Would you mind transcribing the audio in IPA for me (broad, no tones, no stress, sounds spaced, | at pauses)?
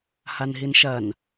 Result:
h a n ɦ i n ʃ ɐ n